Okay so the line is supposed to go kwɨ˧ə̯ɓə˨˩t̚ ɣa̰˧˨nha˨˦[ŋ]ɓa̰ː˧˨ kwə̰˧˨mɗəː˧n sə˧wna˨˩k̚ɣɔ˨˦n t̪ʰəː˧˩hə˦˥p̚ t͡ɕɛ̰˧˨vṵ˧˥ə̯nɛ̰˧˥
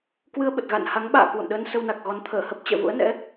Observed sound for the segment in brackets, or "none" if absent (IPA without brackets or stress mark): ŋ